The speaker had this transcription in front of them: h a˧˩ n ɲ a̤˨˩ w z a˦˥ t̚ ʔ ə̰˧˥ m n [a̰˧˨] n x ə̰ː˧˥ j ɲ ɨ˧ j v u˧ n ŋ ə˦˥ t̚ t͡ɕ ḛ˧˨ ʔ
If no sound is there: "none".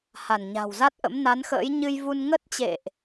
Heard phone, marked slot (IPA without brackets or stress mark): a˨˦